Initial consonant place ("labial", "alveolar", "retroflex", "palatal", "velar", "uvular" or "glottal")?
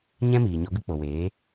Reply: palatal